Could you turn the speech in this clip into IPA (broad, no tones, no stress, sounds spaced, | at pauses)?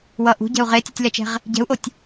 w ʌ ʔ ṳ ɟ ɛ̤ u̯ ʁ e tʲ ɛ̤ tʲ l ɛ t͡ʃ ɛ̤ ʁ | ɟ ɛ̤ u̯ ʔ o tʲ